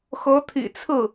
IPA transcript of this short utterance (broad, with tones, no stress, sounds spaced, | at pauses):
x ɤ˧˥ t̪ʰ ḭ˨˩ t͡sʰ ɹ̩˥˩